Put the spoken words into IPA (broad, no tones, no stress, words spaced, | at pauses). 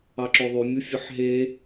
ɑǁoðˤy mʲufʲɯħɦe